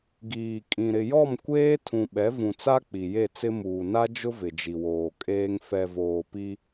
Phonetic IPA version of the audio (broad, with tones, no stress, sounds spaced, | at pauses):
ɡ iː˨ kʼ ĩ˨ ɾ ɪ˨ j ɔ˦˨ m kʷ eː˦ tʰ ũ˨ ɓ ɛ˨˦ v ũ˨ t͡s a˦ k͡p i˨ j e˦˨ t͡s ɪ˦ m uː˨ n a˦ d͡ʒ ʊ˦ v ɪ˨ d͡ʒ i˨ w oː˨ kʼ eː˦ ŋ f ɛ˨ v oː˨ p i˦